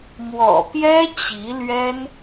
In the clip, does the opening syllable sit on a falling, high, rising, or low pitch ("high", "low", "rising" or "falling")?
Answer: low